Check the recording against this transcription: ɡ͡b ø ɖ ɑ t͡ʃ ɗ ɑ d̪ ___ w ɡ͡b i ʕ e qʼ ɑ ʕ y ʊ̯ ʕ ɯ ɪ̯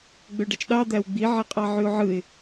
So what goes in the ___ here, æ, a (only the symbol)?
æ